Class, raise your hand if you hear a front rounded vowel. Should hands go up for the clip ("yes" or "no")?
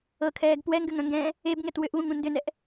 yes